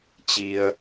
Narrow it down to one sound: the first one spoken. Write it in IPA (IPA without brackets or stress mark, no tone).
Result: t͡ɕ